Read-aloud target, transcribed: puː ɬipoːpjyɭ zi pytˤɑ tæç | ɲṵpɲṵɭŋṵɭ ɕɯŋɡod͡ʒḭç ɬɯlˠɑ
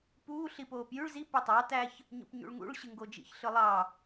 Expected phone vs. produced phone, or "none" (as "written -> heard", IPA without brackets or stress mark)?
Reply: none